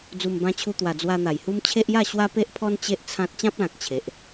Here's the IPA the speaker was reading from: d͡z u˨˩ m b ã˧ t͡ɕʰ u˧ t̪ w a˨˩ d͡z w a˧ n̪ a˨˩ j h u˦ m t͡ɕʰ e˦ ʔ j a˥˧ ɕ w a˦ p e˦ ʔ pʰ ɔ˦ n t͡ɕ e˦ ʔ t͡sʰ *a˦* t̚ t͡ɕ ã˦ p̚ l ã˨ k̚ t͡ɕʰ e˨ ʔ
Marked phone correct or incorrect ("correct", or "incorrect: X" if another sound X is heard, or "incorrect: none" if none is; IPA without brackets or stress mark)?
incorrect: ã˦